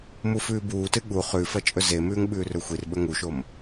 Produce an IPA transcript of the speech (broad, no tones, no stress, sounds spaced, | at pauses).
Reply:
m u f ʉː b uː t ɨ ɠ u χ ʉ f ɐ t͡ʃʼ ɵ z e m ʉː ŋ ɓ ʉː r ɵ xʷ i r ɓ ɵ ŋ u ʃ o m